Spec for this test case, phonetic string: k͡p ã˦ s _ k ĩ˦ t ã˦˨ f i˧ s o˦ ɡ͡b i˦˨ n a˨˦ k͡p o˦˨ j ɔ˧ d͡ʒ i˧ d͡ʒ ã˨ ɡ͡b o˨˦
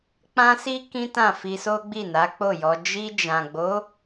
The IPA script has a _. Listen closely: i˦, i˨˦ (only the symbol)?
i˦